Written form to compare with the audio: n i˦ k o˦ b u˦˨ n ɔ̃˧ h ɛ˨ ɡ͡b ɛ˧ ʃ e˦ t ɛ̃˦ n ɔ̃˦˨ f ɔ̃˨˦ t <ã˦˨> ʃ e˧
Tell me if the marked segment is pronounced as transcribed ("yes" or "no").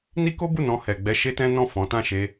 yes